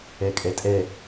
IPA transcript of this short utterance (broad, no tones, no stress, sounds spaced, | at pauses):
ɛ kʼ ɛ tʼ ɛ